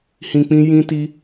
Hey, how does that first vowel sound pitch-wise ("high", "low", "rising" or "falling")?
low